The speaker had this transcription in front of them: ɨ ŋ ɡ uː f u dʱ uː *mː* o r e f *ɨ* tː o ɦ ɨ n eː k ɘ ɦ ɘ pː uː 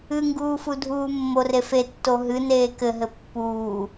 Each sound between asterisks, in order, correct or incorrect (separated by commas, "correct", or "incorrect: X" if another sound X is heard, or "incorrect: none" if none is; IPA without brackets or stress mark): correct, incorrect: e